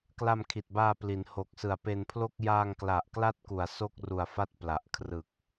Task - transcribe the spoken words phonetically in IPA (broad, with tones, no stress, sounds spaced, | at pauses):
k l a˧ m kʰ i˨˩ t̚ b aː˧ p l i˩˦ n h o˨˩ k̚ s ɯ˨˩ a̯ p e˧ n pʰ l o˥˩ k̚ j aː˧ ŋ k l a˨˩ ʔ k l a˦˥ t̚ k u˩˦ a̯ s o˥˩ k̚ r u˨˩ a̯ f a˦˥ t̚ p l a˨˩ ʔ kʰ r ɯ˨˩ k̚